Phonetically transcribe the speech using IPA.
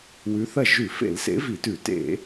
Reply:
w ʉ˨˥ θ ɐ˥˩ ʒ ʉ˧˩˧ f ḛ˧˩˧ l s ḛ˨˥ v i˧˩˧ t ʉ˧˩˧ t ḛ˧˩˧

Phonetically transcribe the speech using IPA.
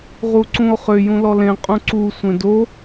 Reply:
ʁ u ǀ ũ o̯ χ ʏ j ũ l ɔ l ẽ qʼ ũ ǀ u sʷ ẽ d o

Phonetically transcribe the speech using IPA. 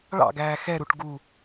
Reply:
ɭ ɑ̰ ɡ æː x ɛ ɾ u ʈ ɡ u

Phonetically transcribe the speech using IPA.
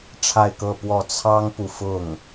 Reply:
ʈ͡ʂʰ a˥˧ ɪ̯ k ɤ˥˧ p w ɔ˥˩ t͡sʰ ɑ˥ ŋ p u˨ f ʊ˥˩ ŋ

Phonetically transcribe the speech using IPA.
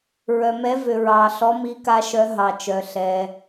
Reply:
ɹ œ˩ m ɛ˨˦ v ʏ˩ ɹ ɑ˩ ɬ ɔ˨˦ m i˨˦ k a˨˦ ʃ œ˨˦ ɦ ɑ˩ t͡ʃ œ˩ ɬ ɛ˩

